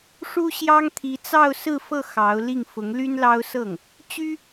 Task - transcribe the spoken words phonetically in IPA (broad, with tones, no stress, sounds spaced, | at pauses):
ʂ u˥ ɕ j ɑ˥ ŋ t̪ʰ i˧˥ t͡s ɑ˥˧ ʊ̯ s ɹ̩˥˧ f ɤ˥˩ x ɑ˧˥ ʊ̯ l i˥˩ ŋ f ʊ˧˥ ŋ l y˥ n l ɑ˥ ʊ̯ s ɤ˥˩ ŋ | t͡ɕ y˥